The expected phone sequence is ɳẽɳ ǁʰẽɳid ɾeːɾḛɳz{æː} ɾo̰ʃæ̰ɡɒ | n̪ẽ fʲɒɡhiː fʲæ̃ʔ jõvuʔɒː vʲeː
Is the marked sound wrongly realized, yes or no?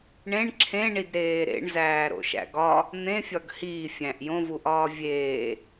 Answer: no